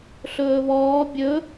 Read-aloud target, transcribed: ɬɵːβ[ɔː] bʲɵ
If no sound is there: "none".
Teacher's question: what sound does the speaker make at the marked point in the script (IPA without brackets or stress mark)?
ɔː